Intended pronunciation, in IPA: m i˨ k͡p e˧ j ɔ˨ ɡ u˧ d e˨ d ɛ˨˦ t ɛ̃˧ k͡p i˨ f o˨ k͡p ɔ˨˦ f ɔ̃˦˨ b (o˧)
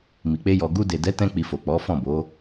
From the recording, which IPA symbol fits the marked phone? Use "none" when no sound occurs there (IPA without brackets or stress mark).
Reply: o˨˦